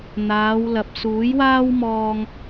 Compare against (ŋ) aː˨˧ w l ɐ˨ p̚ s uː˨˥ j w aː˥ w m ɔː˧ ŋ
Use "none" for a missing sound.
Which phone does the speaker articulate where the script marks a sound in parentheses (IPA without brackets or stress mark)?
n̪